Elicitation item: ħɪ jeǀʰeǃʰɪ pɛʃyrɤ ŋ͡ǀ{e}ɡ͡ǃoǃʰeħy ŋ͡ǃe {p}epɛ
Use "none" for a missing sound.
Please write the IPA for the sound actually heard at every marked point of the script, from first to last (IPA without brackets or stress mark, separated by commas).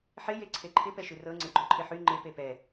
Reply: e, p